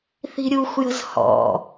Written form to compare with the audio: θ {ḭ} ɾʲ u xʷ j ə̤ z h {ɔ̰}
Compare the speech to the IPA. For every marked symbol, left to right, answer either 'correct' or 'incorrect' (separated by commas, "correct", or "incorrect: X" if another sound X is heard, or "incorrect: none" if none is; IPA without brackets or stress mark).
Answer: incorrect: i̤, correct